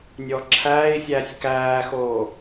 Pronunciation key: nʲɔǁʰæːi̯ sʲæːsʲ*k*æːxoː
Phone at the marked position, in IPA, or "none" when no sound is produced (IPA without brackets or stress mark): k